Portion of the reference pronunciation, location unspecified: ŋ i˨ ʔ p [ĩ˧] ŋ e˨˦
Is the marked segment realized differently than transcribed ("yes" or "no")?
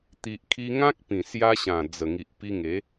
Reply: yes